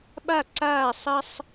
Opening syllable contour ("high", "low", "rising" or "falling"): falling